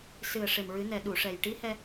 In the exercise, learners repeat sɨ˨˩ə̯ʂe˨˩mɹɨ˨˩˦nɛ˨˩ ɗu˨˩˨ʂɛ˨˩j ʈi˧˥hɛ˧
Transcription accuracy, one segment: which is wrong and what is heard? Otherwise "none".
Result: none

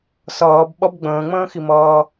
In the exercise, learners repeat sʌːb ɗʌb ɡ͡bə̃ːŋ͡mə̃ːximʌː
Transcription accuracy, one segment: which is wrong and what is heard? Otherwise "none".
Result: ɗ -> ɓ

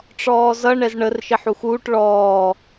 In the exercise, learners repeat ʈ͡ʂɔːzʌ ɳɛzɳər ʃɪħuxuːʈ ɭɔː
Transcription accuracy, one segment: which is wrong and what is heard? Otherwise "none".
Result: none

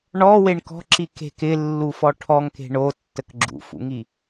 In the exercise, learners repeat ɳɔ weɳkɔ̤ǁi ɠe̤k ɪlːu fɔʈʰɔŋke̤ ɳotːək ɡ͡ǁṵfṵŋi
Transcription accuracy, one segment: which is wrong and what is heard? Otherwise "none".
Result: ɠ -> k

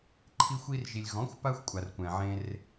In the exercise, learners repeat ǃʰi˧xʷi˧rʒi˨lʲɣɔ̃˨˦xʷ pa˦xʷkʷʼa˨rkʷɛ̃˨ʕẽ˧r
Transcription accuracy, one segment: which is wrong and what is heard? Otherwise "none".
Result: none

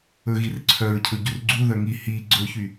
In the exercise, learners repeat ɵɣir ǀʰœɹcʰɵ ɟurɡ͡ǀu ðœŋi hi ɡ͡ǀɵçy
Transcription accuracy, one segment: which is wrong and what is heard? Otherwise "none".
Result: none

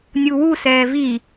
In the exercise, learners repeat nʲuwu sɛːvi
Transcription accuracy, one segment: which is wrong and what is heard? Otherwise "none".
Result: none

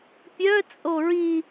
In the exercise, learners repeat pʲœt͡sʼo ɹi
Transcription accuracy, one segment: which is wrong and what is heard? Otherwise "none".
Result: none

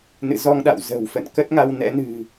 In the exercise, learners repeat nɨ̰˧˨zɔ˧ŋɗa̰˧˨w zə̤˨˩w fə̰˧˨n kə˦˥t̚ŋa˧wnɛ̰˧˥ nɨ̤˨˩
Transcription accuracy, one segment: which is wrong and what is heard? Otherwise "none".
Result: none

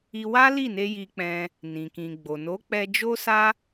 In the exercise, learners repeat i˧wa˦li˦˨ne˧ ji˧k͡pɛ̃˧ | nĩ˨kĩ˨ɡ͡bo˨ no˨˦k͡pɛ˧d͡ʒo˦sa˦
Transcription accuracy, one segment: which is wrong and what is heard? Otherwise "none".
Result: none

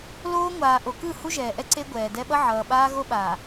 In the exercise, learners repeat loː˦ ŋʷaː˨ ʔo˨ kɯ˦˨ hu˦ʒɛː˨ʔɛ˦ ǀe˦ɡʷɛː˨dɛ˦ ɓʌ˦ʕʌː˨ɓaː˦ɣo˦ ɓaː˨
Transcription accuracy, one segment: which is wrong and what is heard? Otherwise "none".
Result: none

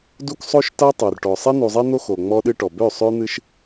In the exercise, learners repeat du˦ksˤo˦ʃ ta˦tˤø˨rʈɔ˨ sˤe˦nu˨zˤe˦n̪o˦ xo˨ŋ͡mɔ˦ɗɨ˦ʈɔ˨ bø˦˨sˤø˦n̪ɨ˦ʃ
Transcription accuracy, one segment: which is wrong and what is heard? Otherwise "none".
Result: none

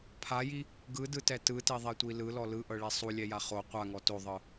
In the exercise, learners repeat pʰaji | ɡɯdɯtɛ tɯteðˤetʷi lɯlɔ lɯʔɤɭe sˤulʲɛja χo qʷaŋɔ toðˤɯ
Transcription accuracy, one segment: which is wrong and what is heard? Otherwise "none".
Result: none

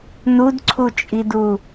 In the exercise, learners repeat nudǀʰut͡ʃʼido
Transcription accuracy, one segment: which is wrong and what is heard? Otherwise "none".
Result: o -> u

